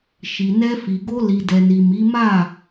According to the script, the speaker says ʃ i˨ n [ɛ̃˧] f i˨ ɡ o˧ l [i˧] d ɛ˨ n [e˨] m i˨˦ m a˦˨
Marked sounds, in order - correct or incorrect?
incorrect, incorrect, incorrect

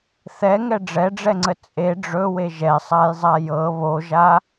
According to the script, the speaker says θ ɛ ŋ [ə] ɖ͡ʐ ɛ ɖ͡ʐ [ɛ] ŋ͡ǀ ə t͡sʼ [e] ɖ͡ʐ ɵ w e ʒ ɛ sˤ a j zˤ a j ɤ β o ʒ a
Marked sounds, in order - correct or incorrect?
incorrect, correct, correct

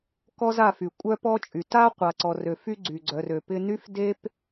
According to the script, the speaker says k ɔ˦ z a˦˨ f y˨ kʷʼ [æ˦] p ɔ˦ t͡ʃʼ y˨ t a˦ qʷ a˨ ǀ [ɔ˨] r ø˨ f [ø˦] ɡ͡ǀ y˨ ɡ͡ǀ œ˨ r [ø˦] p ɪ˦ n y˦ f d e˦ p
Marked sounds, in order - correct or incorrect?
incorrect, correct, incorrect, incorrect

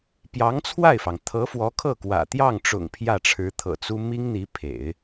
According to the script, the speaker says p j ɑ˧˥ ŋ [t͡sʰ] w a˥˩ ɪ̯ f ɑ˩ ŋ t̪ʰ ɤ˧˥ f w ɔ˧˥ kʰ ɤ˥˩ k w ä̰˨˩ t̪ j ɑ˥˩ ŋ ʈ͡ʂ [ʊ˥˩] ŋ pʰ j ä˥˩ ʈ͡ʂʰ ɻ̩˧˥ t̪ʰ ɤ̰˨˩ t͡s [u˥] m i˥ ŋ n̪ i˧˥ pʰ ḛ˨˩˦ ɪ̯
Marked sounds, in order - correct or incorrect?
correct, incorrect, correct

